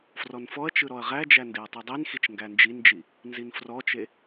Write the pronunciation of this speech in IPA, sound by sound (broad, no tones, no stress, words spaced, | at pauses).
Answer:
frɔnfɔɐ̯t͡ʃɯ ɾɔɐ̯ʁæd͡ʒæ ndeɐ̯tˤidˤinxit͡ʃ ŋɡænd͡ʒind͡ʒi | nzinfrɔt͡ʃe